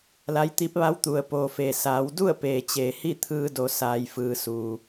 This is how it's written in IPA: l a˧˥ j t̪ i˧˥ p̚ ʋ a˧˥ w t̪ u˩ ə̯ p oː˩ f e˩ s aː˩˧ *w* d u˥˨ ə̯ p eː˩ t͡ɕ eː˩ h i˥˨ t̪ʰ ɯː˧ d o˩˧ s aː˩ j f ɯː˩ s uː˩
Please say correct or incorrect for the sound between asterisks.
correct